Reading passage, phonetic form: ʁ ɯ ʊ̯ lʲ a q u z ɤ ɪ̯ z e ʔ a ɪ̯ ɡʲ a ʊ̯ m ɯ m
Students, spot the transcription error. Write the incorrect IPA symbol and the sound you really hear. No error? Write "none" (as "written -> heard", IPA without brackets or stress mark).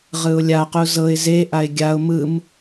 none